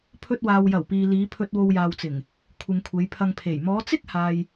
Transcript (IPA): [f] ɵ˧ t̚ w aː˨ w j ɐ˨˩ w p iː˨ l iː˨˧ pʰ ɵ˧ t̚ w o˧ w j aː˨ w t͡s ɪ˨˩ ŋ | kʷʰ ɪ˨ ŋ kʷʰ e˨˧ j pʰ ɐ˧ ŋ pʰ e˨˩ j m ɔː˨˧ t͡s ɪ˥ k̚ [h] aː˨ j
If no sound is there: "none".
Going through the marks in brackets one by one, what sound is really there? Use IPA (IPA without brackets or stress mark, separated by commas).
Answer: pʰ, h